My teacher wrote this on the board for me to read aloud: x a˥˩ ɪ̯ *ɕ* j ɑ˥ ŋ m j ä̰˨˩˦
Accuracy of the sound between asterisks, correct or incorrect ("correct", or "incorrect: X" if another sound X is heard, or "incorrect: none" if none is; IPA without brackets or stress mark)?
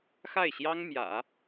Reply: correct